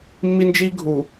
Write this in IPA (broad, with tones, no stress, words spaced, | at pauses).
mːi˦nd͡ʒi˦ɡʱu˨